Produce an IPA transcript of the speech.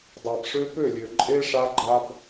dˤ a˨ b ʂ ø˦ p ø˦˨ lʲ ø˨ ǃʼ e˦ ʂ a˦ ɡ͡ǃ a˦ b

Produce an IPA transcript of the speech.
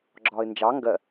ɡ͡ǁ ɒː ɪ̯ n d͡ʒ ɑ ŋ ɡ ɜ

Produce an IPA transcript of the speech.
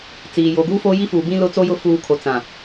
t͡s iː˨ j o˨ ɡ uː˦ f oː˦ j i˦ f uː˨ b ĩ˦ l ʊ˦ t͡s o˦ j ʊ˦ f uː˦ kʰ o˨ t͡s ã˨

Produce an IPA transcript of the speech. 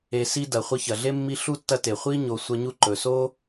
e˨ s i˦ d ɐ˩ χʷ ɐ˦ ç ɐ˩ ɮ e˥ mː i˦ ɬ u˥ tː ɐ˦ t e˩ χʷ i˥ ɲ o˨ sʷ ɐ˦ ɲ u˦ ǃ ɵ˩ s o˥

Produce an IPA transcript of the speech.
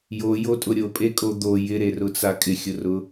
j o j o tʼ ʊ ɾʲ o pʼ e kʼ o d̪ o j ɪ ɾ e r ʊ t͡s a kʼ ɪ xʲ ʊ r ʊ

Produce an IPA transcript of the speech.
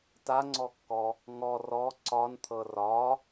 t a ŋ͡ǀ ɔ kː ɔ | ŋ ɔ r ɔ ǀ ɒ n t̪ʰ ɤ r ɒ

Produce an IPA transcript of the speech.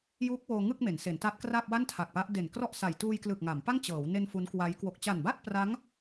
j uː˦˥ k̚ w oː˧ ŋ ɯ˥˩ k̚ m e˩˦ n s e˩˦ n t a˦˥ t̚ k r a˥˩ p̚ w a˥˩ n tʰ a˨˩ k̚ p a˦˥ ʔ d e˨˩ n k r ɔ˥˩ ʔ s a˨˩ j t uː˧ j k l ɯ˨˩ k̚ ŋ a˩˦ m p a˥˩ ŋ t͡ɕ ɤː˩˦ w n e˧ n f u˦˥ n k w a˦˥ j k w o˨˩ k̚ t͡ɕ a˨˩ n b a˥˩ t̚ p r a˦˥ ŋ

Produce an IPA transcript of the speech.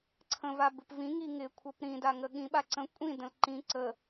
ǀʰ ə̃ v a b ɪ p v ĩ ŋ i ŋ ɪ kʷʰ ə p ɾ ĩ d a ŋ ə ɠ ĩ ɓ a ǀ ə̃ kʷʼ ĩ d ə̃ l ǃ ĩ ǀ ə

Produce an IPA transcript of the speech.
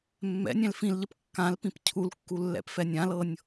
mː ɛ̰ nʲ ɛ̃ l f ĩ l ʎ ə p kː ã l p ĩ p cʰ u l kː u lː ɛ̰ p f ɛ nʲ ã l ɤ nʲ

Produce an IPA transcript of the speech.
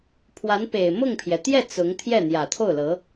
pʰ w a˧˥ n p e˨˩ ɪ̯ m ʊ˥˩ ŋ pʰ j ɛ˩ t̪ j ɛ˥˩ t͡s ʊ˧˥ ŋ t̪ʰ j ɛ˥˩ n̪ j ä˨˩ t̪ʰ o˥˩ ʊ̯ l ɤ˧˥

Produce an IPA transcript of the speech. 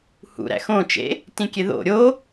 h ṵ ɾ æ̰ x õ t͡ʃ ḛ | t ĩ kʲ e ð o̰ ɾʲ o

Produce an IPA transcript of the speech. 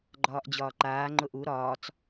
ɡ͡ǃ ɒː ʔ d͡ʑ ɒː ǃ aː ŋ͡ǃ ʊ ʔ u ɾ ɒː t͡s

